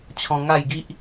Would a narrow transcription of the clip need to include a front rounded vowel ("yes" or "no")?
no